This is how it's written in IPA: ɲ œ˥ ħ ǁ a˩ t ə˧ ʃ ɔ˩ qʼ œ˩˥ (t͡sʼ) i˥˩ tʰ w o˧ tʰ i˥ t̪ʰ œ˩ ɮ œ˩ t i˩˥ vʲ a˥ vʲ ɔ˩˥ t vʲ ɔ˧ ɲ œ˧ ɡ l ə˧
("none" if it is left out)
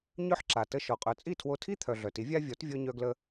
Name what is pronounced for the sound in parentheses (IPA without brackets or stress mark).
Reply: t͡sʼ